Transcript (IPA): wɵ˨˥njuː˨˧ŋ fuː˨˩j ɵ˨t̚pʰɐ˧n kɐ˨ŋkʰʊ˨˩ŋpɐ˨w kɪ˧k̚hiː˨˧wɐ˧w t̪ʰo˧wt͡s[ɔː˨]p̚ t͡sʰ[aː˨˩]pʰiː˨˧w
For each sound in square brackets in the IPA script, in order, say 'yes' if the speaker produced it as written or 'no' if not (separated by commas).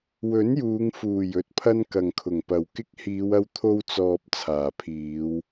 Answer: yes, yes